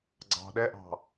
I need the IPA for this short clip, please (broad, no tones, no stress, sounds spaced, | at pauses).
ɡ͡ǀ ɑ̤ ɗ ɛ ʔ ɑ̤